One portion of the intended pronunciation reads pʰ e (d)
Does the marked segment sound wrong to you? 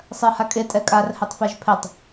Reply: yes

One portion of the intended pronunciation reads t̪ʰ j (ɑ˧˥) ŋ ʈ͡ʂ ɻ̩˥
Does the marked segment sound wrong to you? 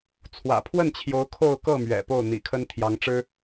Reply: no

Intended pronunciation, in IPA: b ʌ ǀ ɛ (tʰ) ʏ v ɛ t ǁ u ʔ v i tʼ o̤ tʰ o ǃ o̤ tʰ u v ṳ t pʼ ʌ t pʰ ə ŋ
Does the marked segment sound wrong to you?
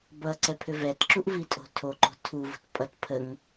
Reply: yes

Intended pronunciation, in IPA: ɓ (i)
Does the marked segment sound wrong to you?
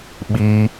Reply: no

